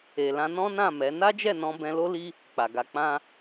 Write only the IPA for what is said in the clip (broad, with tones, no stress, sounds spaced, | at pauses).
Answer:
e˨ l ã˧ n ɔ̃˦ n ã˦˨ m ɛ˨˦ n a˦ d͡ʒ ɛ˦˨ n ɔ̃˧ b ɛ̃˧ l o˦ l i˦ | k͡p a˨ ɡ a˧ k͡p ã˦